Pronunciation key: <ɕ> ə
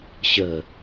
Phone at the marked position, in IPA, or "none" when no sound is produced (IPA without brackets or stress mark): ɕ